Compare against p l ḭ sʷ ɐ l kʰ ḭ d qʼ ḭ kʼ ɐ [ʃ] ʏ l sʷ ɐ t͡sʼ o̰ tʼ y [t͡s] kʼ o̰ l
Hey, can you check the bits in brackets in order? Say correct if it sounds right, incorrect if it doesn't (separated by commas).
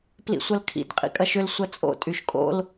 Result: correct, incorrect